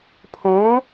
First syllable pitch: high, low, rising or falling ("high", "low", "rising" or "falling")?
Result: rising